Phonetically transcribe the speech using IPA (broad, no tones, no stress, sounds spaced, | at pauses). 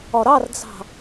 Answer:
ɒ ɾ ɑ r d͡z ɑ̤